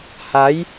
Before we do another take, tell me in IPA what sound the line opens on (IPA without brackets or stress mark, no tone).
h